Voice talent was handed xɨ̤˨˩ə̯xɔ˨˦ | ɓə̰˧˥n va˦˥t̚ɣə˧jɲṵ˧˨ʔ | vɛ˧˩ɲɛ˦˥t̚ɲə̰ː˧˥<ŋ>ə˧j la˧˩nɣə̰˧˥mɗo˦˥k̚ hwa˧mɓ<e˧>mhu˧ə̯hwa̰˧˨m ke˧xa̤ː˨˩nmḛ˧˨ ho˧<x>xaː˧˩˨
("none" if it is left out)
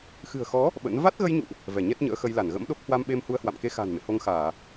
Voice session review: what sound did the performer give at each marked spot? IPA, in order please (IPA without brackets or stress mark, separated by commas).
x, e˧, ŋ